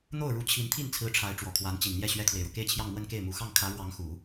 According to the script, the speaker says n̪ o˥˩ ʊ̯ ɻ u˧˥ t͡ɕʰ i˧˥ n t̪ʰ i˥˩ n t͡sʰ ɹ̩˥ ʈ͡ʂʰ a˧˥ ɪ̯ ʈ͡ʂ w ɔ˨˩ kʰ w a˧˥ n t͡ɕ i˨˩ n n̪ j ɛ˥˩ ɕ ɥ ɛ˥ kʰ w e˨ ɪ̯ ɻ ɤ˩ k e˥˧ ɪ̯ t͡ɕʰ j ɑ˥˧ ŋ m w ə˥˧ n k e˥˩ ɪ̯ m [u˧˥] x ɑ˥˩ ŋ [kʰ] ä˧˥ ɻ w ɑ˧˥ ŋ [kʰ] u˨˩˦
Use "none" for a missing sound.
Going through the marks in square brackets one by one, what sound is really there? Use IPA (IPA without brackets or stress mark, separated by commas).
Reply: u˨˩, kʰ, x